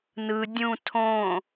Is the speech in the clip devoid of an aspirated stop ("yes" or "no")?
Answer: no